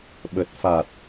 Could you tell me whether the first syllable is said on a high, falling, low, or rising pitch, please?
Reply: low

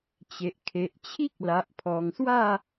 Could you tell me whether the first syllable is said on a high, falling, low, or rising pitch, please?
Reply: low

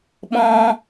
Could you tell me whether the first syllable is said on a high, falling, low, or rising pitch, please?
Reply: high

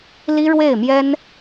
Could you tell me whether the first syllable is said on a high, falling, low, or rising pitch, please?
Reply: high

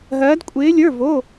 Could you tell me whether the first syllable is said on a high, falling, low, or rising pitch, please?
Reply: rising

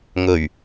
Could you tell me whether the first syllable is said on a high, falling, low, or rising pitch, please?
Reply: low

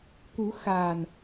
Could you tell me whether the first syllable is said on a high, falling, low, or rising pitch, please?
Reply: rising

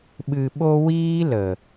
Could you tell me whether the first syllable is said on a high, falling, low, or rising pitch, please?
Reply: low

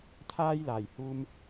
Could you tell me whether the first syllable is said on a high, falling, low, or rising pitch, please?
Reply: high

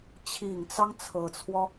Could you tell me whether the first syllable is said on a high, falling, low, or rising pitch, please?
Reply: low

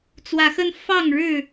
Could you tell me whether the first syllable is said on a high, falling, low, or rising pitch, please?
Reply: rising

